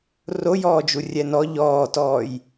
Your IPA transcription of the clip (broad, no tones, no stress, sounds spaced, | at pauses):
r o j ɔː d͡ʒ u rʲ ɛ n ɔ ʎ ɔː t ɔː j